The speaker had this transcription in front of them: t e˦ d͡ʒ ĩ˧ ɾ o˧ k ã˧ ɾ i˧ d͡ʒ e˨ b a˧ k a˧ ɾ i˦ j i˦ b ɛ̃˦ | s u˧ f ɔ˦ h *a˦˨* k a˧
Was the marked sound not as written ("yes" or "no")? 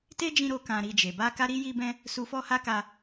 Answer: yes